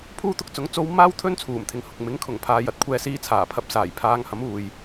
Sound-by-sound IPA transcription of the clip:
pʰuː˥t̪ʊ˧k̚t͡sʊ˨˥ŋ t͡so˧w maː˥wt̪ʰɵ˥n t͡sʰuː˨˩mt̪ʰɪ˨ŋhʊ˨k̚ mɪ˨˥ŋkʰʊ˨˩ŋpʰaː˨jɐ˨t̚ kʷʰɛː˧siː˧t͡sʰaː˨˩pʰɐ˧p̚ saː˨˩jpʰaː˧ŋhɐ˨˥muː˨j

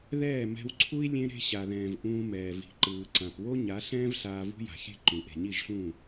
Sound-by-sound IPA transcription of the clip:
ðɛː˦˨mɛ̤˧wǀʰu˦i̯ lʲẽ˦ɾe̤˦ɕa˨ðɛ̃ː˨v ʔũː˧mɛː˨ vi̤˨ǃɯː˨ǀã˨p wo˦ɲa˨˦ɬɛ̃ː˦v ɬaː˧vṳ˦ja̤˨xʲɛ̤˦ ǃũ˨ ʔe̤˨ɲi˦˨ʒɬũː˦˨

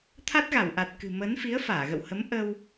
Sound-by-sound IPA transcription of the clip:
t̪ʰa˦˥t̚ɣa˧˩wʔa˨˩t̚ kɨ̤˨˩mə˨˦n fi˨˦ə̯faː˧˩ɣə̰˧˨whə˨˦m ʔə˧w

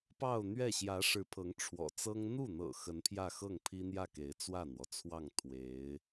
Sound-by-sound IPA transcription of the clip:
pɑ˥˧ʊ̯n̪ɥɛ˥˩ ɕjä˧˥ʂɻ̩˧˥ pʰɤ˧˥ŋ ʈ͡ʂʰwɔ̰˨˩t͡sɤ˥ŋ n̪u˥˩n̪ɤ̰˨˩ xə˧˥npʰjä˥˧xɤ˥˩ŋ pʰi˥n̪jä˥˩ke˧˥ɪ̯ t͡swä˥˩n̪wɔ˩t͡sʰwɑ˥˩ŋ t̪ʰwe˧˥ɪ̯

